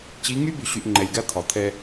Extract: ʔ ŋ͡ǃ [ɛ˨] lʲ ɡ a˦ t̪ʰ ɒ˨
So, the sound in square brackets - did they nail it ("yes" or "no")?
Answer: yes